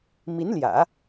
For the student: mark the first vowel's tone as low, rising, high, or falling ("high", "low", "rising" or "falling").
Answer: rising